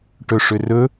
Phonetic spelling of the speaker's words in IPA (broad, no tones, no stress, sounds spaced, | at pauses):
ʈ ɵ ʂ ʏ r ɵ